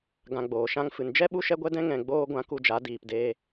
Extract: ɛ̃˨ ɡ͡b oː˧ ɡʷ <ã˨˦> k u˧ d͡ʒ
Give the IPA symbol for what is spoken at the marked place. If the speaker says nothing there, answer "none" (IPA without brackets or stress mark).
ã˨˦